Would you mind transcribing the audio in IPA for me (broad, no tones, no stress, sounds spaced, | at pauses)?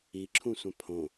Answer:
i ǁʰ ũ sʷ ã pʰ õ